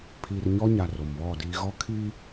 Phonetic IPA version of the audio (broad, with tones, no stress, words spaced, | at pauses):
pʰiː˨rɲɔ˦ɲa˨ ro˨mβɔ˦˨diː˦ ɣɔ˦kʰiː˦